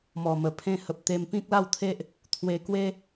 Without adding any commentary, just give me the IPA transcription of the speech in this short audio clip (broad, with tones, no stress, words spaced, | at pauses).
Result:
mɔ˨˩mə˨˩ pʰẽ˦hə˨p̚ t̪e˧m pĩ˦k̚la˥˧wt̪ʰe˦ʔ | t̪ʰwe˧ kwe˦